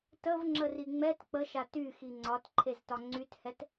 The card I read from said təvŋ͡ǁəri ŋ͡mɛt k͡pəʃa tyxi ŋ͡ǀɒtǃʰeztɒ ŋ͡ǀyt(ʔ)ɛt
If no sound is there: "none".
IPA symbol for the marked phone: h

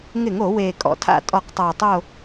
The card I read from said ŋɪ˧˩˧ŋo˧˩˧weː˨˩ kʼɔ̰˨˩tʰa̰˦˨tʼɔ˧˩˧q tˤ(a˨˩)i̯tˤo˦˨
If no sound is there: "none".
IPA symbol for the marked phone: a˨˩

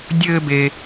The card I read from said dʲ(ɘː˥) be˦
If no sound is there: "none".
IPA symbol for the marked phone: ɘː˥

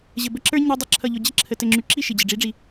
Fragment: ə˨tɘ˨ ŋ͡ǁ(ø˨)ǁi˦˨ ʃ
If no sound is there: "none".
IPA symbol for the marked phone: y˨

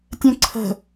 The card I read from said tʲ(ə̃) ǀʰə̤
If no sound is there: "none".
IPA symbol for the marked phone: ə̃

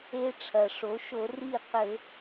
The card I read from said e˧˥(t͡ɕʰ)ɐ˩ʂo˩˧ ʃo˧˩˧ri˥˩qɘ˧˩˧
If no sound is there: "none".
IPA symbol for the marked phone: ʈ͡ʂʰ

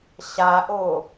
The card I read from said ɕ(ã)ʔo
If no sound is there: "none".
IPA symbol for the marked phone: a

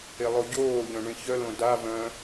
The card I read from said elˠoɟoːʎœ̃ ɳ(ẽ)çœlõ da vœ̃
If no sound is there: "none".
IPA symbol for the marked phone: ẽ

